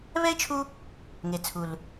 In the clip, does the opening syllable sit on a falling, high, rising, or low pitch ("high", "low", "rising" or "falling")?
high